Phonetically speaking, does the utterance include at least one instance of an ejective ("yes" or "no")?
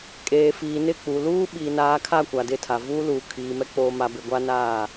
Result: yes